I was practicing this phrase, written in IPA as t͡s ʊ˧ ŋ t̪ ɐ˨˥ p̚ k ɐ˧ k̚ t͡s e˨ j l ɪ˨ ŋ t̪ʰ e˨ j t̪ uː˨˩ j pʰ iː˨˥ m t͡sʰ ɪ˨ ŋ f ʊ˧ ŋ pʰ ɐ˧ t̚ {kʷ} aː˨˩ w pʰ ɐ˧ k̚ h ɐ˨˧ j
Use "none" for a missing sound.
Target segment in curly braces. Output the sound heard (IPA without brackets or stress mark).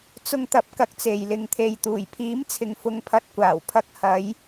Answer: kʷ